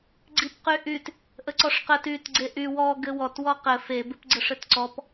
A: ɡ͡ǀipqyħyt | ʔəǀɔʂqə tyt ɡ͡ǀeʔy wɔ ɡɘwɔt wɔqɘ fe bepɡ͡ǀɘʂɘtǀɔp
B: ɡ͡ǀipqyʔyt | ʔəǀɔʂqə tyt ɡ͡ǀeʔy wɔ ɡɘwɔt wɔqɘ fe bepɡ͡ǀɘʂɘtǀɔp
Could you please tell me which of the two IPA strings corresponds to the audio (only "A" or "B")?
B